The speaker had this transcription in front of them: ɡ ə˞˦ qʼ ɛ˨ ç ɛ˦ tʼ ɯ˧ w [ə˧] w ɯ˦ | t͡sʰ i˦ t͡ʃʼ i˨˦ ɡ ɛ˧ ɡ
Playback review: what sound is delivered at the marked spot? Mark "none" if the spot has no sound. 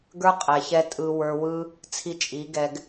ə˞˧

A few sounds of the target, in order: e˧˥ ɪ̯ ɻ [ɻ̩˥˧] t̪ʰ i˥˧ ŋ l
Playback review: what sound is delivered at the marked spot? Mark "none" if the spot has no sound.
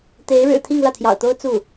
ɻ̩˨˩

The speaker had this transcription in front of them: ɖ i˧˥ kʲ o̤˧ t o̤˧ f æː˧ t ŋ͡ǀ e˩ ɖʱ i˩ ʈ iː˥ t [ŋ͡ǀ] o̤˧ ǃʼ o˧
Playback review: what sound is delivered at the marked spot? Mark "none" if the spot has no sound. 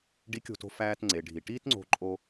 ŋ͡ǀ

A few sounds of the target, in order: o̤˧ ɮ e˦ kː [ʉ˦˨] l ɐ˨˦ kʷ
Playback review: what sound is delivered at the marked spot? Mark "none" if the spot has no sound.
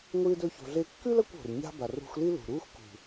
ʉ˦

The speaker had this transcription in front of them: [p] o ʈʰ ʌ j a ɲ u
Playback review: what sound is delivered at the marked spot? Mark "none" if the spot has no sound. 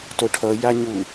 t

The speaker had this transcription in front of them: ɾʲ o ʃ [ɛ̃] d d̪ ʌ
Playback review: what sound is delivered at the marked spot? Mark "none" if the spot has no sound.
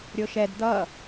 ɛ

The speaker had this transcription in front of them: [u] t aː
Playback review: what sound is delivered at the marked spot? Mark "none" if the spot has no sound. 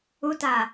u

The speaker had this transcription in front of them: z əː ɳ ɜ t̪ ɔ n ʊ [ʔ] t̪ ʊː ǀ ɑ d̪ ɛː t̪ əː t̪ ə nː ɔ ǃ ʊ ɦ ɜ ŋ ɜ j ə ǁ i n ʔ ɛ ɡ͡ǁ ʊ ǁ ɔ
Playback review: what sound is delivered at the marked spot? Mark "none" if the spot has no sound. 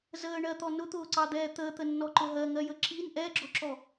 none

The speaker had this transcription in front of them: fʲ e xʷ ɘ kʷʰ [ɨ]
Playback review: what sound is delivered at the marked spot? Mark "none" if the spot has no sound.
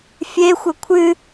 ɨ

